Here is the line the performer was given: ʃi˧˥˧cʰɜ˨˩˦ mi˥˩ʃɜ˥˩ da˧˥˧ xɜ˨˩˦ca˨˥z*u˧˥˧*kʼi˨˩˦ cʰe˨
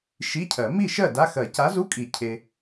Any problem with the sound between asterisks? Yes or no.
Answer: no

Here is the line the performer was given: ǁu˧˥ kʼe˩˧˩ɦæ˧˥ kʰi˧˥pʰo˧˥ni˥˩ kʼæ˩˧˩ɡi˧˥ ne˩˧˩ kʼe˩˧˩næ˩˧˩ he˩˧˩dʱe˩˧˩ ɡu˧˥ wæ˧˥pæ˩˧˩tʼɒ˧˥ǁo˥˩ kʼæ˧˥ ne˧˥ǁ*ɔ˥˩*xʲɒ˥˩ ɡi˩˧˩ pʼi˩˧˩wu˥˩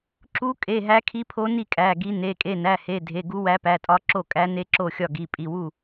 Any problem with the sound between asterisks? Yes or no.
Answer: yes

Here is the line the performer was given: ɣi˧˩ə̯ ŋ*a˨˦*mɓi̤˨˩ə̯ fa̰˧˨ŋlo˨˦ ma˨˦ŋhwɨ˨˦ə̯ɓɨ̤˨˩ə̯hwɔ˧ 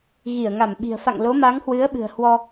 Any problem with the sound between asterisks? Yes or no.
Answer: yes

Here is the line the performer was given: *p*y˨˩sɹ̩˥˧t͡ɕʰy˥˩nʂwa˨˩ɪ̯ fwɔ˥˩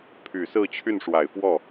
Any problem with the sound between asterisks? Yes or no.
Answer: yes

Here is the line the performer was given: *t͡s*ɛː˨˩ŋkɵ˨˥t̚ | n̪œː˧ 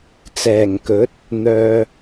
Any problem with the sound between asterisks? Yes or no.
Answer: no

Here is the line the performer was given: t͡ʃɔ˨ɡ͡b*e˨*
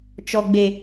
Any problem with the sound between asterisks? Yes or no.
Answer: no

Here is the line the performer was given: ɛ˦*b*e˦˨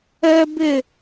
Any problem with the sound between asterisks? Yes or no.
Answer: no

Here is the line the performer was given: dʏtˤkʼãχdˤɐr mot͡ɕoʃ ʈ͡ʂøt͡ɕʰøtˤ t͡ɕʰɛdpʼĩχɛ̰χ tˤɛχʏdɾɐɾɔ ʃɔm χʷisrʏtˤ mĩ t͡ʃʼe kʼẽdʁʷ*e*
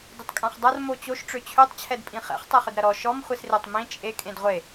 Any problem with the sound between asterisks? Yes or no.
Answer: no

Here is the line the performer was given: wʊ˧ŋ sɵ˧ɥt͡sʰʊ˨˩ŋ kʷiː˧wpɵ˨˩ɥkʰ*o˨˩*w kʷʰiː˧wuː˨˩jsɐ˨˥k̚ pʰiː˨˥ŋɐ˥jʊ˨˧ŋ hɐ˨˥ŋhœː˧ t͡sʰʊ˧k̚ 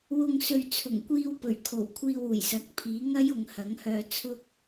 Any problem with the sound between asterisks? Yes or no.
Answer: no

